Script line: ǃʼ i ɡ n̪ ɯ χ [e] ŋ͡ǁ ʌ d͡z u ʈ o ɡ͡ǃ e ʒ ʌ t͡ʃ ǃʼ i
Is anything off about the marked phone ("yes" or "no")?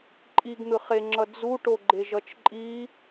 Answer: no